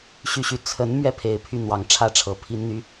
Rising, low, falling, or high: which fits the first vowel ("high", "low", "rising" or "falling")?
falling